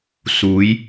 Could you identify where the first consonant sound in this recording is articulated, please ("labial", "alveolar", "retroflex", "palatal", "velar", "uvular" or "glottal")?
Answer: alveolar